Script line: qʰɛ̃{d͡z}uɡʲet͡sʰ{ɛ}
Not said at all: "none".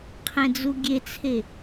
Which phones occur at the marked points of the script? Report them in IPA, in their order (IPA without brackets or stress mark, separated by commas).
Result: d͡z, e